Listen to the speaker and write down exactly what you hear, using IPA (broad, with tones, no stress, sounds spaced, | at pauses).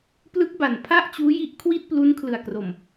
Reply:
p l ɯ˦˥ k̚ b a˨˩ n pʰ a˥˩ ʔ t͡ɕ uː˦˥ j i˥˩ ʔ kʰ w i˥˩ t̚ p l u˦˥ n kʰ l ɯ˨˩ a̯ k r o˨˩ m